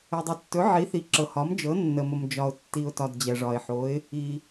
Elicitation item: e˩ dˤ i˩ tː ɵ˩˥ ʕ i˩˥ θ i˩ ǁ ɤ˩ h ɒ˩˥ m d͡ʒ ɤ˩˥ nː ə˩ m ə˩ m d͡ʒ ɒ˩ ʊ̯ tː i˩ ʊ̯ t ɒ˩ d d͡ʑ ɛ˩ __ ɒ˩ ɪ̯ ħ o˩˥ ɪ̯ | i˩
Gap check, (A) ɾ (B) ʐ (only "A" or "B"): B